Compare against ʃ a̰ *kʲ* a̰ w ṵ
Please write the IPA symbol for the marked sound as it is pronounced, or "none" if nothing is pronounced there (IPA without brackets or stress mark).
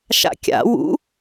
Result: kʲ